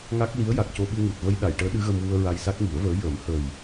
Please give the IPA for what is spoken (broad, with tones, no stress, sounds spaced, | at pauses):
ŋ a˦˥ k̚ l i˧˥ ə̯ j a˨˩ k̚ c o˧ ɓ ɨ˧ ŋ u˨˩ t̚ v ə˧ j ɗ a˨˩˨ j ʈ əː˧˥ ɗ ɨ˧˥ ɣ ə˧ m w u˧ ə̯ ɹ a˧ j s a˦˥ k̚ ŋ i˨˩˦ ə̯ v əː˧˥ j ə˨˩˦ m h ə˨˩ j